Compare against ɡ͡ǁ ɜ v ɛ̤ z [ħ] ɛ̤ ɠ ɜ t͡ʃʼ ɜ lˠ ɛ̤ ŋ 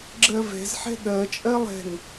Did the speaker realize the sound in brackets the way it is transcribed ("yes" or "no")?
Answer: yes